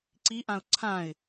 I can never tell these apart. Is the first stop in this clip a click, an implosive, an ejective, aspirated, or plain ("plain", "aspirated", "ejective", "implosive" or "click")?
click